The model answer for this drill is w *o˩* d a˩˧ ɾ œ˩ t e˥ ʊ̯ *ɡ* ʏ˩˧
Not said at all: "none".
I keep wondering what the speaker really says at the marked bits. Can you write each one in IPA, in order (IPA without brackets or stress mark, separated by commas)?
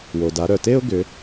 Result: o˩, ɡ